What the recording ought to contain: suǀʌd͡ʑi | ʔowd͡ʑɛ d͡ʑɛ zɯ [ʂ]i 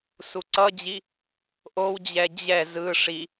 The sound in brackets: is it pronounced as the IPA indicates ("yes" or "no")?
yes